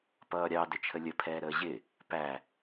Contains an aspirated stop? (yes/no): yes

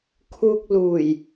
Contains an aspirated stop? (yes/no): yes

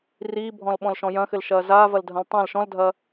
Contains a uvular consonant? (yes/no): no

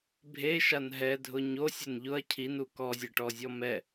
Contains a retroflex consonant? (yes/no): yes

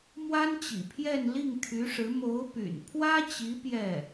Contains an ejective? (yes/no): no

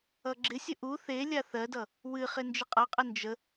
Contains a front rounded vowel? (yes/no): no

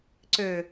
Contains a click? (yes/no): yes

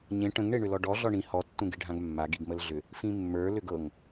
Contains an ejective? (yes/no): no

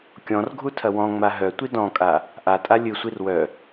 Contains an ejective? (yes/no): yes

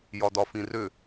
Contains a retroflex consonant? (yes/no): no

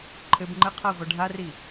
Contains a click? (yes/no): yes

